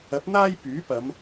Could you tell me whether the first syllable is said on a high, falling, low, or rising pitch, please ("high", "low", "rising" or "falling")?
rising